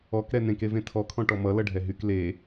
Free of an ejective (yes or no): yes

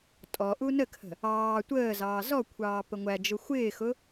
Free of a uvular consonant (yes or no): yes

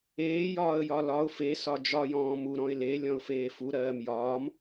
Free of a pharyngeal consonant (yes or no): yes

